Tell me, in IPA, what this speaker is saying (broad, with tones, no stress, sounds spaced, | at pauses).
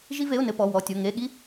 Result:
ʒ i˥ v e˧˥˧ ʊ̯ n ɘ˧˥˧ p ɔ˧˥˧ w ɔ˧˥˧ tʲ o˧˥˧ ŋ e˧˥˧ ɠ i˥